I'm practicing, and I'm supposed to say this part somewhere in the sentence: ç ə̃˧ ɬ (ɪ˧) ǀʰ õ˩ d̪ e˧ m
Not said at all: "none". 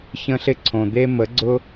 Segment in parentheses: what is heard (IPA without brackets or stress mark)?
ɪ˧